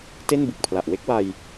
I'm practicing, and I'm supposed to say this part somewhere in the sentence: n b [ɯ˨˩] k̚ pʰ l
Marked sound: correct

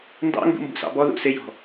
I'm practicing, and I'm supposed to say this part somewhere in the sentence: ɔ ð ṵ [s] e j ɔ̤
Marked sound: correct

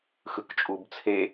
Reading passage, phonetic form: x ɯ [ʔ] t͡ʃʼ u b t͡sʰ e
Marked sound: incorrect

